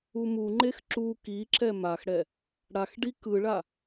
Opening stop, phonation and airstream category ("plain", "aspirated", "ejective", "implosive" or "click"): click